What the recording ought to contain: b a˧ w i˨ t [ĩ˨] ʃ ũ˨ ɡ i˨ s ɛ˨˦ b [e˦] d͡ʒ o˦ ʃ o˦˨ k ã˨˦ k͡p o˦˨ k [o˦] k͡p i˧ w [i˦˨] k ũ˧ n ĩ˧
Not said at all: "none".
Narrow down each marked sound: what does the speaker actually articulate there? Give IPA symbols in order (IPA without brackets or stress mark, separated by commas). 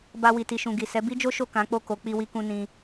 i˨, i˦, o˨˦, i˧